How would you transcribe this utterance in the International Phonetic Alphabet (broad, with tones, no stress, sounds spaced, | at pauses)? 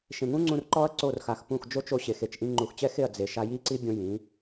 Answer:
ʃ ẽ˨ ŋ ũ˦ ŋ͡ǀ ũ˧ r ǃ ɔ˦ ɐ̯ ǀ o˦˨ r x a˨ x p ũ˦˨ x d͡ʒ o˦ t͡ʃ o˧ ɕ e˨ x e˨ t͡ʃ ʔ ĩ˧ ŋ͡ǃ u˨ x t͡ɕ ɛ˦ x e˦˨ ɐ̯ d͡z e˨ ʃ a˧ j i˦ ǀ i˦ bʲ õ˦ j ĩ˨˦